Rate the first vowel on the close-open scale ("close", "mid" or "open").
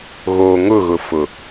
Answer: mid